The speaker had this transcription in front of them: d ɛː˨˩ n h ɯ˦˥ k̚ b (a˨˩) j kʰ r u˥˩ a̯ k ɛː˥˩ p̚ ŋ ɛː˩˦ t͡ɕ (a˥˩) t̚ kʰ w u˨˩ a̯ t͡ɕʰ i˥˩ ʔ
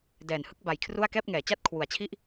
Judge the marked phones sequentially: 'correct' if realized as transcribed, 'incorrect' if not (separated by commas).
correct, correct